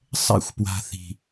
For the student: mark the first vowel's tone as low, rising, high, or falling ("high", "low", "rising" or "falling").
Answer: falling